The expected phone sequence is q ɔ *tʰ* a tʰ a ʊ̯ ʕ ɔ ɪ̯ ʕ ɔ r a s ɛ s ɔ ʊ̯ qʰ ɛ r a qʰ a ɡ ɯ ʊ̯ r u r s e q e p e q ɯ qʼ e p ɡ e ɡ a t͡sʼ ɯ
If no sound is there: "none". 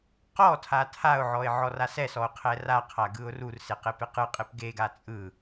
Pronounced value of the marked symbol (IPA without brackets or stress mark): tʰ